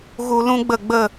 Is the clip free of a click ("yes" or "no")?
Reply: yes